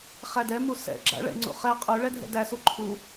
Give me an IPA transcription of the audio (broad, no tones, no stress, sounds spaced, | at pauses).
χ æ d ɛ m u s ɛ̰ ɡ͡ǁ a̰ ɭ ɛ̰ ŋ͡ǀ ṵ χ ɛ qʼ u ɭ ɛ dʱ ɛ̰ d æ s u ǃʰ u